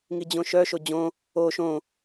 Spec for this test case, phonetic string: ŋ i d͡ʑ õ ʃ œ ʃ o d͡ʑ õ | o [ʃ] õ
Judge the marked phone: correct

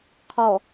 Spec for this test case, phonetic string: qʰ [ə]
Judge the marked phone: incorrect: ɔ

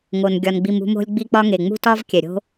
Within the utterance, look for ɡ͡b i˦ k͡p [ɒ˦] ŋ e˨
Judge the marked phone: correct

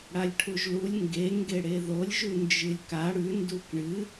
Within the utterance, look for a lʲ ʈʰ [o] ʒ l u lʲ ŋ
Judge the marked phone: incorrect: u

